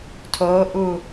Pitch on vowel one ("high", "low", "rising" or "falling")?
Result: rising